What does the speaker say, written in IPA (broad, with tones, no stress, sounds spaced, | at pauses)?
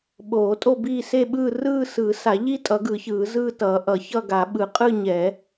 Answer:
ɓ oː˨˩˦ tʼ o˥˧ b iː˥˧ s e˥˧ ɓ ɯː˥˧ r ɯː˥˧ s ɯː˨˩˦ s a˨˩˦ ʎ i˥˧ tʼ ʌ˨˩˦ ɡ ɯ˨˩˦ ç ɯː˨˩˦ z ɯː˥˧ t ʌː˨˩˦ ʔ ʌ˨˩˦ ç ʌ˥˧ ɡ a˨˩˦ ɓ ɯ˨˩˦ qʼ ɯ˥˧ ɲ ɛ˨˩˦